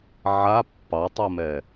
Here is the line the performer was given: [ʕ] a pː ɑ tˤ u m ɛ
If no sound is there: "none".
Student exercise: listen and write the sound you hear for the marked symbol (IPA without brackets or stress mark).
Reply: ʕ